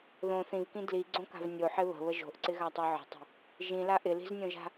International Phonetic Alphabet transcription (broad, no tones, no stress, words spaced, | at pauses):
ðõ θĩvkĩ dliɡ͡ǀõka̤v nʲoħɪ βə̤βə ʒo̤ʔǀɪɣatˤo ʕə̤tˤə̤ | ʒĩla ʔɪli̤znʲõʒa̤